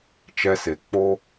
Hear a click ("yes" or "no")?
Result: no